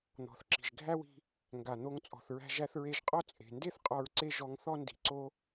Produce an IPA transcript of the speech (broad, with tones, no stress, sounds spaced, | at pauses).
n̪ ɔ̤˩ θ ǁ i̤˩ ʒ ɡʱ æ˥ w i̤˧ | ŋ ɡ a˩ n̪ o˧ ŋ t͡sʼ ɔ̤˩ θ ɹ æ̤˧ ʒ æ˧ θ ɹ e˧ ʒ qʼ ɔ˥ t͡sʼ e̤˩ n d e˥ θ qʼ ɔ˧ ɹ ǀ e˥ ʒ ɔ˧ ŋ θ ɔ˥ n d i̤˩ ǀ o˧